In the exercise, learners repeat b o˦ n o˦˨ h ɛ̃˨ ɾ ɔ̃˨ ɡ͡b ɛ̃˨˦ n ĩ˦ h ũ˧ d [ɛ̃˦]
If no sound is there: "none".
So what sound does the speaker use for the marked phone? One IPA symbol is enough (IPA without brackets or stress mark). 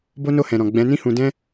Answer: ɛ̃˦